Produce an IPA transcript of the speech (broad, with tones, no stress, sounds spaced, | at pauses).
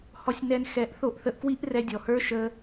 h ɔ˧ sʲ n ɛ˧ n x ɛ˨˦ ʔ θ o˧ ʔ θ ə˧ ʔ k w i˦ ʔ r ɛ˧ dʲ ɔ˨ h ə˞˦ ʃ ə˦